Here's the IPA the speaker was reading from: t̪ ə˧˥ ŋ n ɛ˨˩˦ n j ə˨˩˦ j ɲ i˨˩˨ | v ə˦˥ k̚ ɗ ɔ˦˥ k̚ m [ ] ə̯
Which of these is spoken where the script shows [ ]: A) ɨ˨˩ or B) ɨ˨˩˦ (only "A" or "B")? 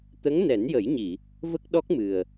A